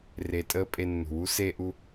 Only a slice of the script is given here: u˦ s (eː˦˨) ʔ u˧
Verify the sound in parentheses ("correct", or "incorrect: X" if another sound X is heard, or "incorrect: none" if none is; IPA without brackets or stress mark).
incorrect: eː˧